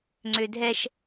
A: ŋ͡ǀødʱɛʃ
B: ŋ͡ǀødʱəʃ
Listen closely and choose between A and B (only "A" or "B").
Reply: A